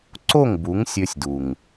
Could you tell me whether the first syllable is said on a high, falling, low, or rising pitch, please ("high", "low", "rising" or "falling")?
falling